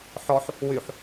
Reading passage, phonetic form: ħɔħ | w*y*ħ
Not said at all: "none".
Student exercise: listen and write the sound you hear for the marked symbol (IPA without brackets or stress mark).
y